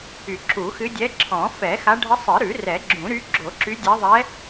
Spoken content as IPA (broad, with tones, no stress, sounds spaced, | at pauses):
y˨˩˦ ǁ u˨˩˦ x ɨ˧˥ dʲ ɛ˧˥ ǁʰ ɔ̃˨˩˦ f ɛ˨˩˦ x a˧˥ ɖʱ ə˧˥ sˤ ɨ˨˩˦ ɾ ʉ˨˩˦ r ɛ˨˩˦ ɡ͡ǁ ũ˨˩˦ ɾ y˧˥ ɡ͡ǁ o˨˩˦ ǁ y˧˥ dʲ ɛ˧˥ ðˤ ɛ˧˥